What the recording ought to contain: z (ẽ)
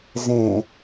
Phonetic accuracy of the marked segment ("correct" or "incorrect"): correct